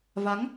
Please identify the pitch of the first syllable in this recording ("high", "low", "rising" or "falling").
rising